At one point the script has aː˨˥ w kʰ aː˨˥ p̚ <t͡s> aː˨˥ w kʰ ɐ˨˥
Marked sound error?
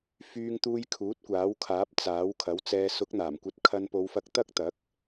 no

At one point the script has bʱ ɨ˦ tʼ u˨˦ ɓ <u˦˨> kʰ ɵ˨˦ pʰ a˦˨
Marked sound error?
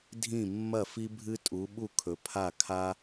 no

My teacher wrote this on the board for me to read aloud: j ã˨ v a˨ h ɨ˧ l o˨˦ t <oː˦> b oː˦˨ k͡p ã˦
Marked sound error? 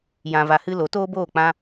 no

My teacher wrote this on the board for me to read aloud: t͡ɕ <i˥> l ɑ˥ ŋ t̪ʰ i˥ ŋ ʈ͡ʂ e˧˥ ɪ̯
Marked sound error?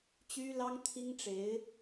yes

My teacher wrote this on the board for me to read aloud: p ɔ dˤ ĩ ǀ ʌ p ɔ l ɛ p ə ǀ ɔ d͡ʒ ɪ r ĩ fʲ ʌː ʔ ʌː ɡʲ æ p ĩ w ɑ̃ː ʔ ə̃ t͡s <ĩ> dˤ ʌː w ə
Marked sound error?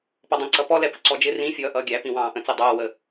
yes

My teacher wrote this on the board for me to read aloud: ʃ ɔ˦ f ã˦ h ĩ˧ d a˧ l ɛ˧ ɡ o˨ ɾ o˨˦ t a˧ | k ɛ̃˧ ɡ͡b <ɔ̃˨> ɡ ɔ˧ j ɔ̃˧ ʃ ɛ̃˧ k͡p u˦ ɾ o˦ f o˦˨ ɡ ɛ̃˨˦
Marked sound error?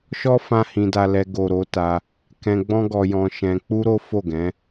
yes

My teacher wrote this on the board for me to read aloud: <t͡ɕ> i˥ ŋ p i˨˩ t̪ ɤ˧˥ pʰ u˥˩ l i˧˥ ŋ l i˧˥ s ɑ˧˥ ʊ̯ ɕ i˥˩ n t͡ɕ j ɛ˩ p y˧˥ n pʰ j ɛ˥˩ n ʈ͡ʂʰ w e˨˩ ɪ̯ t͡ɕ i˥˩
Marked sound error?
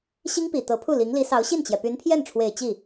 yes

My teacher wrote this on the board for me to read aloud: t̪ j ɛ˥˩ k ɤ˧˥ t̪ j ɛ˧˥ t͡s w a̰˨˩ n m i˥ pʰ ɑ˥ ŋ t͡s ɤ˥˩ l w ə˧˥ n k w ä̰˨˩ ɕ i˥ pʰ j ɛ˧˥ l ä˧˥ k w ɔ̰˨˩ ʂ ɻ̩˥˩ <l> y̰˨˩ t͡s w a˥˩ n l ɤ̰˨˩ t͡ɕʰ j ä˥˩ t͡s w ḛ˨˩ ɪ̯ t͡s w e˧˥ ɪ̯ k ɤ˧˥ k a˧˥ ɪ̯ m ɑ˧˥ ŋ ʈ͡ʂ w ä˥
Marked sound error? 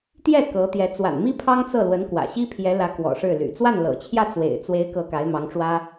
no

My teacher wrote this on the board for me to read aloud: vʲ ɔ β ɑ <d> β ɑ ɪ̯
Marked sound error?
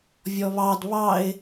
no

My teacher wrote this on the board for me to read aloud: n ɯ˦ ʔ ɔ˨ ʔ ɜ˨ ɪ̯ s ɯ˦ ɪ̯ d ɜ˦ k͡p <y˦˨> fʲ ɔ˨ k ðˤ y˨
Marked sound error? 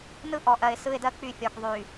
no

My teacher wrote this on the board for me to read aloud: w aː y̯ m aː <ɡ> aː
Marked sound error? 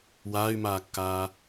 yes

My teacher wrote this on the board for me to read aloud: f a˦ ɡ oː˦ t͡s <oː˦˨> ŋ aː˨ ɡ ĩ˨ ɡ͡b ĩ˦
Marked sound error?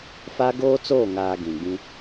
no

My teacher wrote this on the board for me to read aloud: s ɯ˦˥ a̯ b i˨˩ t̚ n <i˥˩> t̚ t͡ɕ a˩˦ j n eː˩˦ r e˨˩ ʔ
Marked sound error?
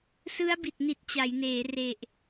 yes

